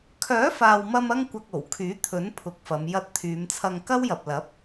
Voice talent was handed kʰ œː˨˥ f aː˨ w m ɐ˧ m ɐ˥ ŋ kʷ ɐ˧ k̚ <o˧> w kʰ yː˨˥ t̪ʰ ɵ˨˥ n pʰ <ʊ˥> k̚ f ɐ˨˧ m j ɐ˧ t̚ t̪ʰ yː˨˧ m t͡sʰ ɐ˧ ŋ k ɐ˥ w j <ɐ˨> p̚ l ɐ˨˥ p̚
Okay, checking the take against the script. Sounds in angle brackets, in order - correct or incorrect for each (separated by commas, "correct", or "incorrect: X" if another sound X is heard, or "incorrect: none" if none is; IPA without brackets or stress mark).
incorrect: o˨˩, incorrect: ʊ˨, correct